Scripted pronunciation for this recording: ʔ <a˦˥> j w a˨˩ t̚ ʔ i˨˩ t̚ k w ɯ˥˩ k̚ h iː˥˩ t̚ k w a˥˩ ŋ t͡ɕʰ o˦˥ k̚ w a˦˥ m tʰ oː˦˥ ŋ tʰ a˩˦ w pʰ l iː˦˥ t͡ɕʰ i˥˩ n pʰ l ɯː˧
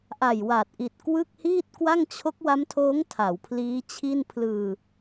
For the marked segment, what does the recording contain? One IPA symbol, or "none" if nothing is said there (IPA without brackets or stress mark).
a˨˩